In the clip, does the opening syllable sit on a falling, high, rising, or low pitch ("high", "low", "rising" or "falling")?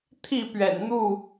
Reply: falling